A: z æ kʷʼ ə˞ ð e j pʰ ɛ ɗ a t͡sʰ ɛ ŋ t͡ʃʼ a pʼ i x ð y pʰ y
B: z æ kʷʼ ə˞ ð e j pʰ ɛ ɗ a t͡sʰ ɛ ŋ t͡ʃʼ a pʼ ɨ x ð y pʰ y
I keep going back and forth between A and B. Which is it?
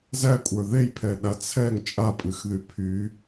B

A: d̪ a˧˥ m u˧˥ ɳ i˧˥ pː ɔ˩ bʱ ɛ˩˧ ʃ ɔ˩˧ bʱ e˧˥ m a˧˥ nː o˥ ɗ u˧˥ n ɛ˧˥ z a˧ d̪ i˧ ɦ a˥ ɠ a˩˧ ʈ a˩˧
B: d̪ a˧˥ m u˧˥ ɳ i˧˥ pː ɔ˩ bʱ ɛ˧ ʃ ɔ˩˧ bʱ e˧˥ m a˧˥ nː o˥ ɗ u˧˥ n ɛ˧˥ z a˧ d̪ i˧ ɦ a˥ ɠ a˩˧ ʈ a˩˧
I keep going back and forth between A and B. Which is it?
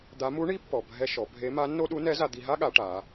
B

